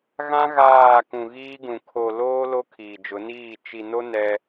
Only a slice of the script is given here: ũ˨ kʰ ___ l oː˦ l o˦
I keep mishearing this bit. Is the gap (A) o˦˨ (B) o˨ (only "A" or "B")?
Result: B